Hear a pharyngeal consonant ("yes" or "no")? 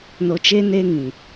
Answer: no